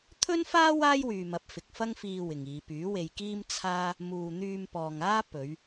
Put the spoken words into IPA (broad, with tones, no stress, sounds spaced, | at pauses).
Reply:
t̪ʰ ɵ˥ n f aː˥ w aː˥ j w yː˨ m ɐ˨˥ p̚ f ɪ˨ k̚ f ɐ˥ ŋ f iː˧ w ɪ˨ ŋ iː˨˧ p yː˨˥ w e˧ j k iː˥ m t͡sʰ aː˥ | m uː˨ n̪ yː˧ m p ɔː˨ ŋ aː˥ p ɵ˨˧ ɥ